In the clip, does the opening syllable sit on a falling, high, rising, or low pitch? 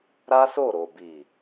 high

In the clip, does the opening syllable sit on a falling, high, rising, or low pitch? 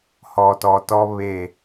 low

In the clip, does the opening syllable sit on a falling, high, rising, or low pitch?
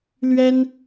high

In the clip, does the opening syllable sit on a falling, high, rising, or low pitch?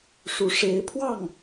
rising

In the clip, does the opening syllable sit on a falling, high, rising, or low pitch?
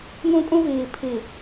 high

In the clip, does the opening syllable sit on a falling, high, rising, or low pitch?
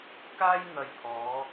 high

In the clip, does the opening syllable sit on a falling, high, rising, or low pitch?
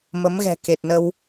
rising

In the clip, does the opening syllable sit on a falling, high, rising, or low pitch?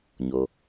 low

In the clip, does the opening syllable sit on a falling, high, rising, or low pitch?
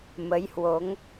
rising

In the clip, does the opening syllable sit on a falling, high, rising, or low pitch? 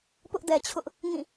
high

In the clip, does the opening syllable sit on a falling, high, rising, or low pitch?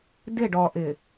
falling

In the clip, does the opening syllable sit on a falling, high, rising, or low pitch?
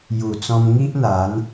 low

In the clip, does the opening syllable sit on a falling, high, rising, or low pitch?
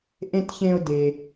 low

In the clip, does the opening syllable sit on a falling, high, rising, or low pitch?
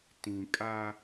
low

